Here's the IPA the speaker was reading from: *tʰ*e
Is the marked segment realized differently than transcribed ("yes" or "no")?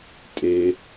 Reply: yes